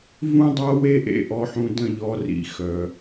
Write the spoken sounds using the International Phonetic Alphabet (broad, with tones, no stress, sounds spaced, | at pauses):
v ũ˦ dˤ a˦ w e˦ ʔ ḛ˨ ʔ ɔ˨ ħ ũ˨ d ə̃˦˨ ʎ ɔ˨˦ r ḭ˨ x œ˨